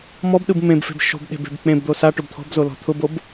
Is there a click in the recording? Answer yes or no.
no